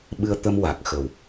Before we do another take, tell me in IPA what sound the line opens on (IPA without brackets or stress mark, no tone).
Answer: ɓ